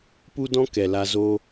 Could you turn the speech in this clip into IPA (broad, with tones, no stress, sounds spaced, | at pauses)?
p u˦ d ɔ̃˦ k ɛ˨ l a˧ z oː˦